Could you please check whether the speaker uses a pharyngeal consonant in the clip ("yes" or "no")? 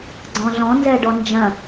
no